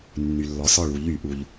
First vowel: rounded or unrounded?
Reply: rounded